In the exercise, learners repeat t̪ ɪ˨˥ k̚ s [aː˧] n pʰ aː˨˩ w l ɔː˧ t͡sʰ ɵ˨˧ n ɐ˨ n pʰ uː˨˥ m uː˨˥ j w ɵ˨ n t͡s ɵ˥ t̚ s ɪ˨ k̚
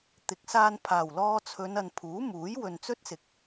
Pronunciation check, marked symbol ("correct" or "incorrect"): correct